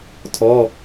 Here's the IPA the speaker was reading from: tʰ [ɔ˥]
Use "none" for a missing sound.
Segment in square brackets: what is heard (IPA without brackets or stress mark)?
ɔ˧˥˧